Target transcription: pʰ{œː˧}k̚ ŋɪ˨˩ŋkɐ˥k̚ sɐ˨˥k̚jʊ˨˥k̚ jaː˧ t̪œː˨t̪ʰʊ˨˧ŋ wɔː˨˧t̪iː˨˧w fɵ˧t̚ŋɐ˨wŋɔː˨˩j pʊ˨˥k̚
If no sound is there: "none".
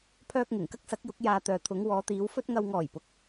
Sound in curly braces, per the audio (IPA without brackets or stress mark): œː˧